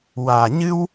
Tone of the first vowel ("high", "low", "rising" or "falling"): low